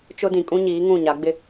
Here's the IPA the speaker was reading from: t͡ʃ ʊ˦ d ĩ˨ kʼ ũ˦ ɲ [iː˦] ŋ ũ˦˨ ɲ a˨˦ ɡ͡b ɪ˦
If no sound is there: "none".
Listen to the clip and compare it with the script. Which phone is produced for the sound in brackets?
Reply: iː˨˦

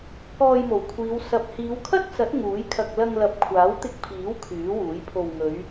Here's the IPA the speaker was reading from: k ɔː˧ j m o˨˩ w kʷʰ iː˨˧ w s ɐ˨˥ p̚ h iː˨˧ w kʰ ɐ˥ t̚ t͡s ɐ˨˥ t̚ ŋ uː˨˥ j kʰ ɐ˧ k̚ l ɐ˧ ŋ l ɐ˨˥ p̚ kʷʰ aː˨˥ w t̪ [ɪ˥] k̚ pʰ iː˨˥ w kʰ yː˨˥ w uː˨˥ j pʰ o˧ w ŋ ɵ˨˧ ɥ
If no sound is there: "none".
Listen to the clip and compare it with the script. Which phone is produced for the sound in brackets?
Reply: ɪ˧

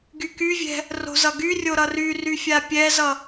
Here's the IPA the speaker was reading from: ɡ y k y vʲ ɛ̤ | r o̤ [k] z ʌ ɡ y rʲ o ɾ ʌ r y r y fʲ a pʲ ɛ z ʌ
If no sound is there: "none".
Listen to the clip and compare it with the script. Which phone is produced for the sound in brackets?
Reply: none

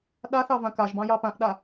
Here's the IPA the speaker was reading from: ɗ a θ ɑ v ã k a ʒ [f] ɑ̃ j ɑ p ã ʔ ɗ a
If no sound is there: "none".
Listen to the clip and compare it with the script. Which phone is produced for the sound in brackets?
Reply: b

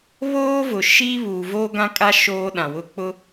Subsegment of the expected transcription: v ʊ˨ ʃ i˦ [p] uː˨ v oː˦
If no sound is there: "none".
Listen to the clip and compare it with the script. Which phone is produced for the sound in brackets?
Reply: β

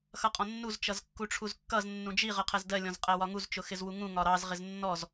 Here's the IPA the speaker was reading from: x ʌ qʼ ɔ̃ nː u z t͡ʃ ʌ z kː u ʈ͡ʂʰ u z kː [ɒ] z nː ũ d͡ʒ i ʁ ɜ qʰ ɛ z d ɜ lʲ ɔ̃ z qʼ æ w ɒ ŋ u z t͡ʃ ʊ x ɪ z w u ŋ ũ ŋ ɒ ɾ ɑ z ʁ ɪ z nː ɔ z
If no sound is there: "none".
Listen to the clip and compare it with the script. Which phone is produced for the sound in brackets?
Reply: ʌ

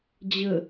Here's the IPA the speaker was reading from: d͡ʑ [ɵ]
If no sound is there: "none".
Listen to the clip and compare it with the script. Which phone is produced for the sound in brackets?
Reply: ə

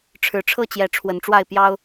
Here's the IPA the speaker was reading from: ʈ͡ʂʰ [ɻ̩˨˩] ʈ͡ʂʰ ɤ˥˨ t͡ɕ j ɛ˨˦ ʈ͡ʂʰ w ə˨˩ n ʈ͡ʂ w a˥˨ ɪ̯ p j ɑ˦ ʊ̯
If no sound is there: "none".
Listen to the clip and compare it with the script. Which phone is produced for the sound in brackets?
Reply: ɻ̩˨˩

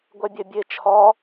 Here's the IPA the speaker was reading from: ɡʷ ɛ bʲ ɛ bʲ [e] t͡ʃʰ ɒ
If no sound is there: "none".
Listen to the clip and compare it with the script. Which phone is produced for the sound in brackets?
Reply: e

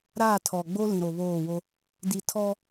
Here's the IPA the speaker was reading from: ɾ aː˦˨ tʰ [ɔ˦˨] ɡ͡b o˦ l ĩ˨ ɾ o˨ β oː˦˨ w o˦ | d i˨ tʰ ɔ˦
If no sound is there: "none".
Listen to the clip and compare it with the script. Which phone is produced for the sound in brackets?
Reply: ɔ˨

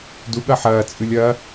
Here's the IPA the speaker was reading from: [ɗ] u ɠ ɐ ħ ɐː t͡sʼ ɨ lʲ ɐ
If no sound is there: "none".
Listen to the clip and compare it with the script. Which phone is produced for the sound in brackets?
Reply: d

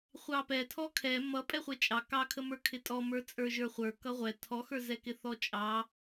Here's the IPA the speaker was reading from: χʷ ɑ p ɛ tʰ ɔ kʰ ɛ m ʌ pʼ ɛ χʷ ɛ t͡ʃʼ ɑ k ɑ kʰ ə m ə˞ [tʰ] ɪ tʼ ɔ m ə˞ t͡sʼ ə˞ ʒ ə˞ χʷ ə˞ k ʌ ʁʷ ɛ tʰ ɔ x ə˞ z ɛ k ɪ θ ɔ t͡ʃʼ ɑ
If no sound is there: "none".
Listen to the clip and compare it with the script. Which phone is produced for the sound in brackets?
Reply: kʰ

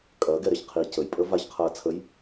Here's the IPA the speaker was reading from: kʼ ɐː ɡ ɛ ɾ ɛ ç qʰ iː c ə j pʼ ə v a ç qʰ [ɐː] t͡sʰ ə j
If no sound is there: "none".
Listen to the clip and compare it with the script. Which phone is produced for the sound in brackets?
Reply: ɐː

